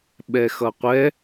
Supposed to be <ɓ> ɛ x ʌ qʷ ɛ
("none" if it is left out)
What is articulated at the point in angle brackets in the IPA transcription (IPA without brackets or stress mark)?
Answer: ɓ